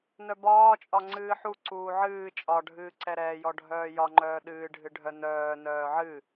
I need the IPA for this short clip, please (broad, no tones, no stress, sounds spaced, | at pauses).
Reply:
n œ b ɒː t͡ʃʼ ɒ ŋ͡ǀ ɨː ħ u ǀ uː ʕ ɨː t͡ʃʼ ɒ ɖʱ ɨː ǀ ɛ ɾ ɛː j ɔ ɖʱ œː j ɒ ŋ͡ǃ œː ɗ ɨː ɖʱ ɨ ɖʱ œ n œː n œː ʕ ɨ